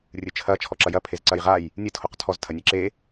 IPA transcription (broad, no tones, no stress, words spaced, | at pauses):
rʲɨt͡ʃʰɐ t͡ʃʰɔǁɐjɐ pʰezǀɐjʁaj | nʲɨ tʰoqtʰɔz tʰɐnʲeǁe